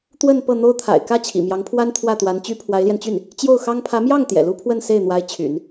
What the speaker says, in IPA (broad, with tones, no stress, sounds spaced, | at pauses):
t̪ w ə˥˧ n p ɤ˥˩ n̪ o˥ ʊ̯ t̪ʰ a̰˨˩ ɪ̯ k ä˥ t͡ɕʰ ḭ˨˩ m j ɑ˧˥ ŋ pʰ w a˥ n t̪ʰ w ä˥˩ t̪ w a˧˥ n t͡ɕ y˥ pʰ w a˧˥ ɪ̯ l j ɛ˧ n t͡ɕ y˥˩ n | t͡ɕ j o˥˩ ʊ̯ x ɑ˥ ŋ pʰ ä˧˥ m j ɑ˥˩ ŋ t̪ j ɛ̰˨˩ l u˥ pʰ w ə˥˧ n s e˥˩ ɪ̯ n̪ w a˧˥ ɪ̯ t͡ɕʰ y̰˨˩˦ n